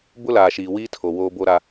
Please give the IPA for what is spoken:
bʊ˦laː˨ʃiː˨ wiː˦tʰo˨ woː˦bo˦ɾa˦

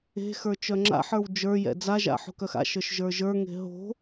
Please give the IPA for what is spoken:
e̤xə˞ t͡ʃœŋ͡ǁa̰ħə˞w d͡ʒə˞jɛ̰ d͡zaʒa̰ ħo̤kœxa̰ʃə˞ʃ ʒə˞ʒə˞ŋe̤ ɦo̤

